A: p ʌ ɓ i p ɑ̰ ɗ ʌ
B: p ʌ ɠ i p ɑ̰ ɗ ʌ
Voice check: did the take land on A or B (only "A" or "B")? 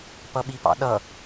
A